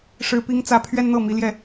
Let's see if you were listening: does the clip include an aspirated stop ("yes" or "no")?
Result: yes